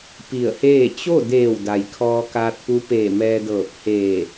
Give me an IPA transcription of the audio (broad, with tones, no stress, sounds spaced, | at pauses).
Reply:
p i˧˩ ə̯ h eː˥˨ t͡ɕ o˥˨ d eː˧˩ w d a˩ j kʰ ɔː˧ k aː˧ t̚ p u˧˥ p eː˧˩ m ɛː˧ d ɤː˧˩ p̚ h eː˧˩